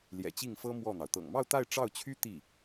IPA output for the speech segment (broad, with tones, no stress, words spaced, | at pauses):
ljɛ̰˨˩t͡ɕi˥˩ŋfɤ˥ mwɔ˥˩n̪ɑ˩ʊ̯ t̪ɤ̰˨˩ŋmɑ˥˧ʊ̯t̪a˥˧ɪ̯ ʈ͡ʂɑ˥˩ʊ̯t͡ɕʰy˥ t̪i˥˩